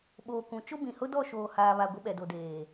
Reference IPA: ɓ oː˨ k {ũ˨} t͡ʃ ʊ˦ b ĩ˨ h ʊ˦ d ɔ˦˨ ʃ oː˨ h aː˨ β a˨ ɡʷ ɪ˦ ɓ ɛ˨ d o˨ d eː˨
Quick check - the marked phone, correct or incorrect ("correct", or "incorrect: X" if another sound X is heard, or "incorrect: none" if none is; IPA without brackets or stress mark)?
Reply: correct